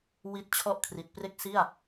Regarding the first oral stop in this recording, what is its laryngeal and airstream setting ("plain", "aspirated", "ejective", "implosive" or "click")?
plain